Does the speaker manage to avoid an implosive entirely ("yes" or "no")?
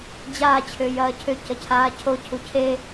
yes